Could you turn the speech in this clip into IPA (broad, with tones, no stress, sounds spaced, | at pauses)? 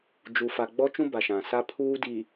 d͡ʒ u˨ f a˨ ɡ͡b ɔ˦ t͡ʃ ũ˦ b a˨ ʃ ã˨ s a˦ pʰ uː˦ d i˨